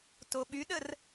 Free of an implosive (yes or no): no